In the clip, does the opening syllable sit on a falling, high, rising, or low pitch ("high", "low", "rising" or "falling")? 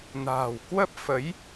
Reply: low